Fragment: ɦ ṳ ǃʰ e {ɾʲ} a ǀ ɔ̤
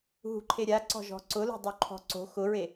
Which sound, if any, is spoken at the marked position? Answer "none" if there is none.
ɾʲ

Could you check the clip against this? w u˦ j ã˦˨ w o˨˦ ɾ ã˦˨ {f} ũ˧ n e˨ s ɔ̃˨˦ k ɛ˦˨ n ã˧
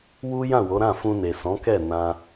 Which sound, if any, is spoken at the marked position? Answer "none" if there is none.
f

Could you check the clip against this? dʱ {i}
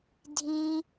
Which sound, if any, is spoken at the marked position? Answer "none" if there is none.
ĩ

